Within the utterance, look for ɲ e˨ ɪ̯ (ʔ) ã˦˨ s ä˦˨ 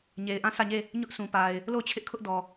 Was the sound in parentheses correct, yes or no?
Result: yes